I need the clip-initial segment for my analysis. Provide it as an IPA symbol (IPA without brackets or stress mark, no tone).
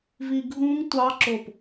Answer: v